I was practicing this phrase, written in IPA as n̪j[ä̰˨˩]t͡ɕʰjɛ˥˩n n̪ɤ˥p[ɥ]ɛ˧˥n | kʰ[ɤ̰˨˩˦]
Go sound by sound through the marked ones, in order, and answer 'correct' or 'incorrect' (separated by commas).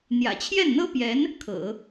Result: correct, incorrect, correct